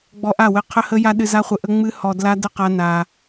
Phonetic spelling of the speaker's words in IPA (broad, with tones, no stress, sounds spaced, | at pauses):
ɡ͡b ɔ˧ ʔ a˦˨ w ɘ˧ qʰ ə˦ h ə˦ j a˦ ɗ ɨ˧ z a˦ χʷ ɘ˧ ʔ ə˦ ŋ͡m ɨ˦ h ɔ˧ d l a˦ d ə˦ q a˦ n a˧